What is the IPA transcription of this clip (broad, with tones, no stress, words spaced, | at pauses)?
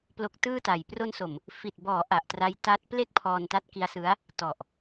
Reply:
plo˦˥k̚tɯː˥˩ta˨˩j pro˧nso˨˩m | fi˨˩t̚bɔː˩˦ ʔa˨˩ʔtra˦˥j ta˦˥t̚ ple˥˩k̚pʰɔː˧n ta˦˥t̚ki˦˥a̯sɯ˦˥a̯ | tɔ˨˩ʔ